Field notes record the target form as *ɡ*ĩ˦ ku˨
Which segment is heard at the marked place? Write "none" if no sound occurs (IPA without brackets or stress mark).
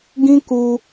ɡ